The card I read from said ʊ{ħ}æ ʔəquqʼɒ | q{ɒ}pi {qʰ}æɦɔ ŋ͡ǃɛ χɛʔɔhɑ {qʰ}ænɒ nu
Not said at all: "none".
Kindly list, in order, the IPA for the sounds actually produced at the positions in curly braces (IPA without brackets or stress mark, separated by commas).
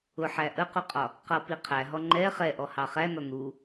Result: ħ, ʌ, qʰ, χ